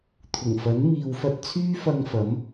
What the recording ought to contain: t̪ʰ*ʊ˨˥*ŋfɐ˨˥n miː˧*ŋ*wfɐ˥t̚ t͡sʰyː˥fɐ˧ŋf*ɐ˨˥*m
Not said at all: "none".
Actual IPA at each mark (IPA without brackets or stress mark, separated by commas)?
ʊ˨˩, none, ɐ˨˥